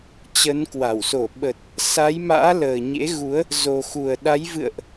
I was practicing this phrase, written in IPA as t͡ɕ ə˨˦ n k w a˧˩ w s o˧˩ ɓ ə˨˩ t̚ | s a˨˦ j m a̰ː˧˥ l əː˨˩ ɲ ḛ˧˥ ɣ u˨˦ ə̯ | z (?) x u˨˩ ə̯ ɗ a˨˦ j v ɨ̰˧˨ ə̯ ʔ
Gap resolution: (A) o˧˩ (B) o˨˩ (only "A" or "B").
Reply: B